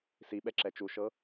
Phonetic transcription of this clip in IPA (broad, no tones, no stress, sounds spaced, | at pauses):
s i ɓ ɛ ǁ ɛ t͡ʃ u ʃ ɤ